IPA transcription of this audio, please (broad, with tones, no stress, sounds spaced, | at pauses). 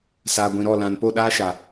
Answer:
s aː˨ ɡʷ ĩ˨ ɾ ɔ˦˨ l ã˨ n p o˦˨ ɗ aː˦ ʃ a˨